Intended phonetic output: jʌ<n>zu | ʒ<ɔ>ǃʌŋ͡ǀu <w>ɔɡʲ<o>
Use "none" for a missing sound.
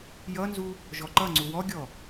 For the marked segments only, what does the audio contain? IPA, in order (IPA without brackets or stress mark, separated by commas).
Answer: n, ɔ, w, ɔ